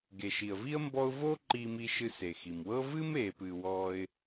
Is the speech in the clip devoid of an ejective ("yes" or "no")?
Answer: yes